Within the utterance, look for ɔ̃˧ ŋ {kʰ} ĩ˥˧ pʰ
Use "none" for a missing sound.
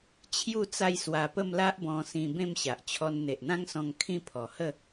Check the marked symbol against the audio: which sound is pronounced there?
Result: kʰ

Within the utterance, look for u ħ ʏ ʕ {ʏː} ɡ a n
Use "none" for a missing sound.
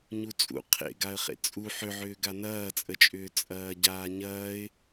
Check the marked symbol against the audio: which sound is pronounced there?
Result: ʏː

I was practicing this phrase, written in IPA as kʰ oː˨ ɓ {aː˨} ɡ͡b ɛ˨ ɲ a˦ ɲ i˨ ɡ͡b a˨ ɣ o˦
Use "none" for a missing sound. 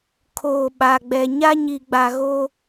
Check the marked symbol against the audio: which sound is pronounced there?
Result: a˨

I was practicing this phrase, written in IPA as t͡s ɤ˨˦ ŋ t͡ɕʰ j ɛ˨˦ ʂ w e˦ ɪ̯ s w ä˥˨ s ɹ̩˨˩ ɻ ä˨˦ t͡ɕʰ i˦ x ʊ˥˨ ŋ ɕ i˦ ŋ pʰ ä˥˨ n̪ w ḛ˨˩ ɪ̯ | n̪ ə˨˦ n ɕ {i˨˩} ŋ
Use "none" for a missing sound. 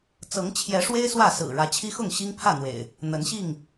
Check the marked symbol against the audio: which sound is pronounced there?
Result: i˥˨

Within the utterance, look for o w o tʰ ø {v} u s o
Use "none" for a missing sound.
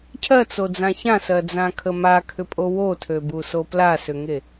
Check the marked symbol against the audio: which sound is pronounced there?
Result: b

